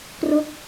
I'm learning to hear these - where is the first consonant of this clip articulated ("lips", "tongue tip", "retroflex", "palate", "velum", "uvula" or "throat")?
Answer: velum